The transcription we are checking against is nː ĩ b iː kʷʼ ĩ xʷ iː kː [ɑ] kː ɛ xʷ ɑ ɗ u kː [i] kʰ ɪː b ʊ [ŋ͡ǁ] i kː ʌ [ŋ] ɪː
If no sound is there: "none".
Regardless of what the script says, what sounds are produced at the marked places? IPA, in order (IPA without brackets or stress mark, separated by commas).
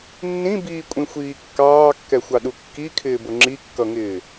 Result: ɑː, i, ŋ͡ǁ, ŋ